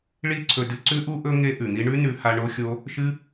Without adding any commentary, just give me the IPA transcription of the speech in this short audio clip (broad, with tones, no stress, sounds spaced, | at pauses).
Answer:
ɭ i˦ ǀʰ ɵ˧ d ɨ˧ ǀ ʉ˦ ʔ u˦ ʔ ɵ˦ ŋ e˦ ʔ ʉ˨ n̪ i˦ ɳ ʉ˦ n ʉ˧ h a˧ ɳ o˦ xʲ o˦ | ʃ ɨ˦